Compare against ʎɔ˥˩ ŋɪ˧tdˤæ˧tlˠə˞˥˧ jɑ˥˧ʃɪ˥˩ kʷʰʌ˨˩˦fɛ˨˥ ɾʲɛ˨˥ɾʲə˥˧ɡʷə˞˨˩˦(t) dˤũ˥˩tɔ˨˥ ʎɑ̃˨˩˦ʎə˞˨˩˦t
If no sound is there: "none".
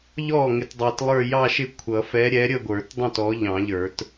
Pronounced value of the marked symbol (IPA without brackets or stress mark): t